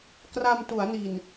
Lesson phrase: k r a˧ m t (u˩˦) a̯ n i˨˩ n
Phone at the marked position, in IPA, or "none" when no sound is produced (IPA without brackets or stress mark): u˩˦